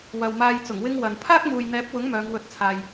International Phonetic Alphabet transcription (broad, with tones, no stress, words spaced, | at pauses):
wɐ˨wmaː˧j t͡sʊ˨˩ŋwɪ˥ŋ wɐ˨n pʰaː˥k̚muː˨jn̪ɛː˨˥p̚wʊ˨˥ŋ mœː˨˧ŋwɵ˧t̚t͡sʰaː˨j